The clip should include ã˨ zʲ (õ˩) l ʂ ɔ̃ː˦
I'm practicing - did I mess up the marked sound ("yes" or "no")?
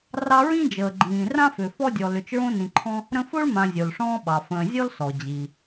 yes